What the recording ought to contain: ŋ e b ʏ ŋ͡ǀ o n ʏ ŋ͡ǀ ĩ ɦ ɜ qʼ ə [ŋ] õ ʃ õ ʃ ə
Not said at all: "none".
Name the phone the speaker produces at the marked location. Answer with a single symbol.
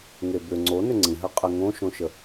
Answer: ŋ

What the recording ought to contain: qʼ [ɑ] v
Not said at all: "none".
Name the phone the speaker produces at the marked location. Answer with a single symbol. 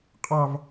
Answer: ɑ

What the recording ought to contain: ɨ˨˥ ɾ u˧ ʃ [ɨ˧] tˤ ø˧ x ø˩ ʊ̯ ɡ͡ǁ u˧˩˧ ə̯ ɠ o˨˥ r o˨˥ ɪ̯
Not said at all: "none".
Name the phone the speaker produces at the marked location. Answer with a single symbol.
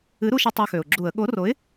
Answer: ɪ˧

